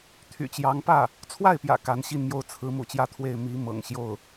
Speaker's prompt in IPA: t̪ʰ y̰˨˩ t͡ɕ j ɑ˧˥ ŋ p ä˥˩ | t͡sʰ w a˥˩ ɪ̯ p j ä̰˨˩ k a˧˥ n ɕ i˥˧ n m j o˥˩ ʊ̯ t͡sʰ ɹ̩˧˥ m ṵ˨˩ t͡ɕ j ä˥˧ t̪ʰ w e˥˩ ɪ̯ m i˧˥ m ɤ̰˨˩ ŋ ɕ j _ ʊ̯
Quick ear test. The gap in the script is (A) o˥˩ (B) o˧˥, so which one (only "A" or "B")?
A